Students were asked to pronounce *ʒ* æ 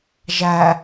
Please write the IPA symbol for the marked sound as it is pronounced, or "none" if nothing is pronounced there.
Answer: ʒ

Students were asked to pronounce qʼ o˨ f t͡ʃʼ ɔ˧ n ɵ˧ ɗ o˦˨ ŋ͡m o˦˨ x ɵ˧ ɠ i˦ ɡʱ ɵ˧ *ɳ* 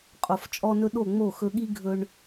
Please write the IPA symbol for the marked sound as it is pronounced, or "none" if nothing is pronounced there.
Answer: ɳ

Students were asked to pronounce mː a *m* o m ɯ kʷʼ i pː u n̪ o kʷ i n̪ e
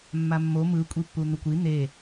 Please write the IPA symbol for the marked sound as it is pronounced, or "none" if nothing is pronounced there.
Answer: mː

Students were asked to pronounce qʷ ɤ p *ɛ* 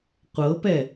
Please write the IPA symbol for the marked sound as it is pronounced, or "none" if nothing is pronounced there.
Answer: ɛ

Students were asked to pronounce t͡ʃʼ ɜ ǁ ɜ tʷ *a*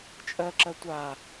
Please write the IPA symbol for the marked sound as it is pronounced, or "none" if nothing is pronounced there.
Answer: a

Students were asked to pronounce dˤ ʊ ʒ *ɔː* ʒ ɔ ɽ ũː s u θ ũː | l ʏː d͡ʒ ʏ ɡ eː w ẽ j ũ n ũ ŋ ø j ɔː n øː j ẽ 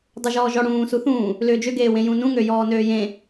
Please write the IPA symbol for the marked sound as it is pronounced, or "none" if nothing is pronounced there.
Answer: ɔː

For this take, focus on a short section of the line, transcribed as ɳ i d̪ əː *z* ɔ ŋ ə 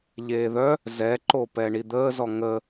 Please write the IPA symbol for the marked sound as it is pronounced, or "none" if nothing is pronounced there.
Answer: z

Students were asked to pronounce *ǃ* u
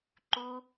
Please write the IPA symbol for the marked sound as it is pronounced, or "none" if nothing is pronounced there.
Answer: ǃ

